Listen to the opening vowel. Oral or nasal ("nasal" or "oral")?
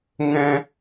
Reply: nasal